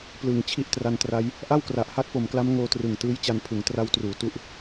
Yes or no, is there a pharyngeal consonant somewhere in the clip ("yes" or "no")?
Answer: no